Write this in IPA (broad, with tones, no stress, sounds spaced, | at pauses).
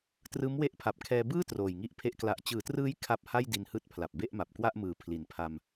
t r ɯː˦˥ m w e˦˥ ʔ pʰ a˨˩ p̚ kʰ ɛː˧ b ɯː˥˩ t r oː˨˩ j ŋ i˥˩ ʔ pʰ e˥˩ ʔ k l a˨˩ ʔ t͡ɕ ɯː˩˦ t r ɯː˦˥ j kʰ a˥˩ p̚ h a˥˩ j d i˧ n h ɯː˦˥ t̚ pʰ l a˨˩ p̚ b e˥˩ ʔ m a˨˩ p̚ k w a˥˩ ʔ m ɯː˨˩ pʰ l i˨˩ n pʰ a˧ m